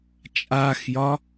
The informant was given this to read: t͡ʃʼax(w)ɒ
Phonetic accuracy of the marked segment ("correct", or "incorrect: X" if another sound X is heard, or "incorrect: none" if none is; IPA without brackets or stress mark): incorrect: j